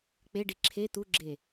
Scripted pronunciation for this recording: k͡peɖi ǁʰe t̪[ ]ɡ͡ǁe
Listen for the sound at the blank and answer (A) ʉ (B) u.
B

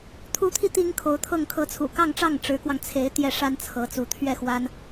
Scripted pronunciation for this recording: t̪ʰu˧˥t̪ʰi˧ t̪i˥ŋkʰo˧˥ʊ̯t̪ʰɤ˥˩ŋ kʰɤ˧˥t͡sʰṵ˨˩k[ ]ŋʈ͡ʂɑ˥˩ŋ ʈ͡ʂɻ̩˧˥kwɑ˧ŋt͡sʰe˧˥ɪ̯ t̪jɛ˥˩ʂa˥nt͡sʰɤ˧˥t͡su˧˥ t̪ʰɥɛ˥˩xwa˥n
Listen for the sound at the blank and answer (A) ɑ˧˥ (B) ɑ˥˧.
B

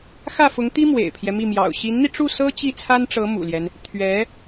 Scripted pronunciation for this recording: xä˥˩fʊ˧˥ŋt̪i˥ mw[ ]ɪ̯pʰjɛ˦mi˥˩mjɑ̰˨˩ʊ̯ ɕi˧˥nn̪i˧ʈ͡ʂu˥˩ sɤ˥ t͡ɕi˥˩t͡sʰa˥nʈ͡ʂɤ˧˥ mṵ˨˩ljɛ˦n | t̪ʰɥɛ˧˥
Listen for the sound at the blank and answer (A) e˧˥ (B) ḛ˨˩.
B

